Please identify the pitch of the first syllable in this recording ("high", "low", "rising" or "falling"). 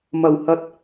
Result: low